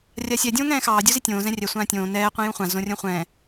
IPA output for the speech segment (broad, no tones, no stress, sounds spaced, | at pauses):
rʲ a sʲ ɛ dʲ õː ŋ ɛ̃ː x ɑː dʲ u z i tʲ õː z ɛ̃ rʲ ɛ sʷ ãː tʲ õː n ɛː qʷ ĩ j ũ χʷ ã z õ rʲ õ χʷ ɛ̃ː